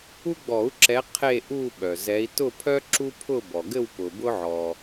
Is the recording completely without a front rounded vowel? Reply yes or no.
no